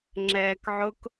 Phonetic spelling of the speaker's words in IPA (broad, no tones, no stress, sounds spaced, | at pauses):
ŋ͡ǁ ɛː k ʕ ʊ k